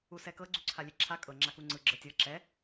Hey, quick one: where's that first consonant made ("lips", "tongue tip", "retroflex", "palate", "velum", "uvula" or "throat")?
tongue tip